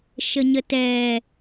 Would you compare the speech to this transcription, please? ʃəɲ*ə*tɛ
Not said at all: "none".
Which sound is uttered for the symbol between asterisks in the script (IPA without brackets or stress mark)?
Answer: ə